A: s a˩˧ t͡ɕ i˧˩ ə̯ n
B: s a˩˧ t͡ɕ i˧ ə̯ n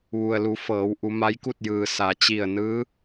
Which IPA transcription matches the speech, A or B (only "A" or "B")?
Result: A